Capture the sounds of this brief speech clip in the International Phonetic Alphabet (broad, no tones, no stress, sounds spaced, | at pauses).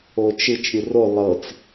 o t͡ʃ ɯ t͡ʃ ɾʲ ɯ r o lˠ ɤ t͡s